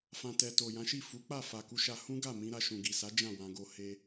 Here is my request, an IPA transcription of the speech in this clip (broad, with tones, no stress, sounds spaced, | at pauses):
f ã˨ t ɛ˨ t o˨ j ã˨˦ ʃ i˦˨ f u˨˦ k͡p a˦˨ f a˨ k u˧ ʃ a˧ h ũ˦ ɡ a˦˨ m ĩ˧ ɾ a˧ ʃ ũ˨ ɡ i˨ s a˨˦ d͡ʒ ã˦˨ w ã˧ ɡ o˧ h e˧